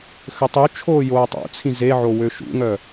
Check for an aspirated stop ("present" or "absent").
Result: present